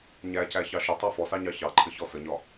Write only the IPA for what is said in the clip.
ɲæcæçɑ ʃʊtˤɑ fɔsɑɲɑ çɑǃʰəçɔ səɲɒ

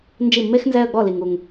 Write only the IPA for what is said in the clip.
nd͡ʒi˥˩mːe˥xnzɛ˥˧ə̯ ɡ͡bɔ˥˩li˨ŋu˨ŋ

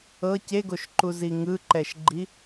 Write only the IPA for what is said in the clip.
ɤ ceɡoʃǃuzi ŋɯǃɛʃɡ͡ǃi

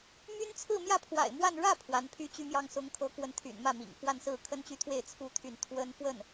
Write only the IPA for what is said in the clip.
my˥n t͡sʰɹ̩˥˧mjä˥˩pʰwa̰˨˩ɪ̯mwa˥˧n ɻä˥˩ pʰwa˧˥npʰy˥t͡ɕy˥mjɑ˥ŋ sʊ˧˥ŋkʰɤ˧˥kwə˧˥nt̪ʰy̰˨˩n mä˥˩mḭ˨˩ŋfwa˥˧nsɹ̩˥˩ kʰə˥nt͡ɕy˥t̪ʰwe˥˩ɪ̯ t͡sʰu˥t̪ʰy˥˩n t̪ʰwə˥nfwə˥˩n

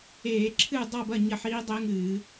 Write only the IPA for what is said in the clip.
eː˧˩˧ ǁʰɨ˥˨ dˤa˥˨bɐ˥˨ ɲɐ˥˨ħiː˦˥dˤe˦˥ŋɨː˧˩˧

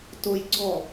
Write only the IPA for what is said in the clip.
tojɡ͡ǀɔ

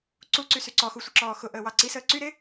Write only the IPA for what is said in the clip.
ǀuǀysy ǀɔxusʷəǁɔː xʊʔəːwɑ ǀisəː ǀyɾe

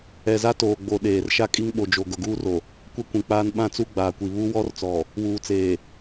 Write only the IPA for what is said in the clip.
ɛ˨za˦toː˨ɡ͡bo˨ ɗeː˨r ʃa˦kʼi˦ŋɓo˨d͡ʒo˨ ɡʊ˨ɡuː˦ro˨ | kʷɛ˦kʷĩ˨k͡paː˦n ɓã˦t͡su˦ ɡ͡baː˨kʷi˨ βu˦wɔ˦rt͡sɔ˨ | wuː˨t͡seː˨

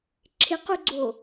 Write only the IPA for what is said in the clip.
ǁʰɪquɡ͡ǀo

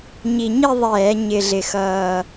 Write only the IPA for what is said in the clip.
ɲi˨˩ɲi˦˨ ðˤɛː˧˩˧ɲɪ˨˩ɮɪ˨˩xʌː˨˩

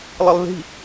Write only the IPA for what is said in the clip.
lˠɯlˠði̤

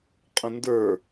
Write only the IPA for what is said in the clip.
qʼə̃ndə˞

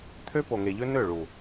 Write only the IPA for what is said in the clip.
t̪ʰø˦po˨ŋe˨ʎø˦ nø˦˨ɭu˨

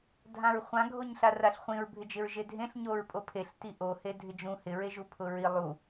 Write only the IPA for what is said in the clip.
dʱãɹχʷã ɡʱoɲɬaraɬχʷĩɹ bʱɪd͡ʒɪɹʒedʱẽɬ ɲoɹpʼopʰeɬ tiʔo hedʱɪd͡ʒũ hɪ ɹeʒupʰʊɹi lˠu

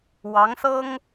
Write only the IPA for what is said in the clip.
wɑ˧˥ŋsɤ˥ŋ

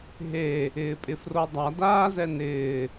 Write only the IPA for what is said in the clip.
ɦe | ɪːpʼɪfrodˤa daːzɛnɪː

